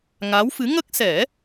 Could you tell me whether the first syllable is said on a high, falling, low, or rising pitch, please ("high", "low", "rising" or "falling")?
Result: rising